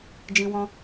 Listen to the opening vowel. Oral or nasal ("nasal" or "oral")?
nasal